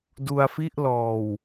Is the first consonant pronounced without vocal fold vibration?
no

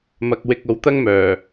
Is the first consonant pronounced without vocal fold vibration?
no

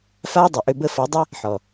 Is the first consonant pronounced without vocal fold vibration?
yes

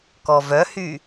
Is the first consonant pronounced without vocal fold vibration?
yes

